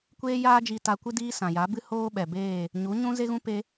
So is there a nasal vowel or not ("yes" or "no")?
yes